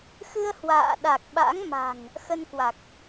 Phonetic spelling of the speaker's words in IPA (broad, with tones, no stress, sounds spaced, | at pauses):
x ɨ˧ ə̯ h w a̰ː˧˨ ɗ a˨˩ k̚ ɓ a̰˧˥ ŋ m a̤˨˩ ŋ | x ə˧ n k w a˨˩ k̚